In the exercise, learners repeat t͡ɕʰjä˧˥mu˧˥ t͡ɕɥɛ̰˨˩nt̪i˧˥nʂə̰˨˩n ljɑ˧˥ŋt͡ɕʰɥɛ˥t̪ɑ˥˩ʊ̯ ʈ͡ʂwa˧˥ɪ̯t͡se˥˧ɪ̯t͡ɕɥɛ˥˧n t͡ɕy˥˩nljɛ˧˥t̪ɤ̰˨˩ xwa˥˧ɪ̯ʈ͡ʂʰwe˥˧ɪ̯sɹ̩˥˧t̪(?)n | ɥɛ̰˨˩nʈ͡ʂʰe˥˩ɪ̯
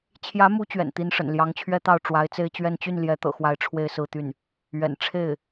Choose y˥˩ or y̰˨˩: y˥˩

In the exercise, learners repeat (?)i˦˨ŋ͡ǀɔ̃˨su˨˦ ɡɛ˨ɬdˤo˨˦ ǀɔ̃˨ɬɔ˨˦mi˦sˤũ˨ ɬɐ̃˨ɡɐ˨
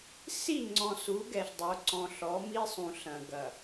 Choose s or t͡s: s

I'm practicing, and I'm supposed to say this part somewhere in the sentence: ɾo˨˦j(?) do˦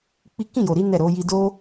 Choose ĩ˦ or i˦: i˦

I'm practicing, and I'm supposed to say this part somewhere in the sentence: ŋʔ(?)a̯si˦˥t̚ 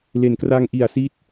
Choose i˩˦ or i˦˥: i˩˦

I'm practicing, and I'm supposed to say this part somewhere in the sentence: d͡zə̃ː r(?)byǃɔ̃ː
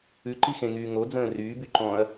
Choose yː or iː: yː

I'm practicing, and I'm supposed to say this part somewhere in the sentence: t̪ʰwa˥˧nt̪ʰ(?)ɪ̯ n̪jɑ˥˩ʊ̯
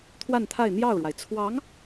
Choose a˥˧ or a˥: a˥˧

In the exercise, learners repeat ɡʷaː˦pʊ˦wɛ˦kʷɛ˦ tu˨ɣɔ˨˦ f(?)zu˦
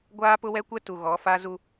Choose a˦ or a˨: a˦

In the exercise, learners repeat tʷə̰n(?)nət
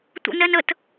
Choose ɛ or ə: ɛ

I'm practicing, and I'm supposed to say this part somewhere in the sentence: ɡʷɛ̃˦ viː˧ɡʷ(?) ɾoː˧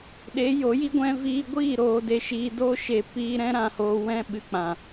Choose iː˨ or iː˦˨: iː˦˨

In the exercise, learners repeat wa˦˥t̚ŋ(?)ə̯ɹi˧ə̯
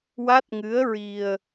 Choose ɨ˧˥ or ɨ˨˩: ɨ˧˥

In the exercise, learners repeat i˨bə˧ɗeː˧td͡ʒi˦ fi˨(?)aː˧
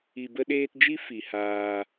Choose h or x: h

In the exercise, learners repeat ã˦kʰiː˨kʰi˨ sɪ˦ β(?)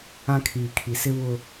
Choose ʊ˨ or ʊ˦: ʊ˦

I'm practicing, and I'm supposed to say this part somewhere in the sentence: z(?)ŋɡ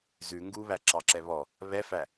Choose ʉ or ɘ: ʉ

